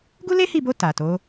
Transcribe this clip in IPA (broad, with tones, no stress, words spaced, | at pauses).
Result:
ɡu˦le˦hi˦˨bo˧ ta˨to˨˦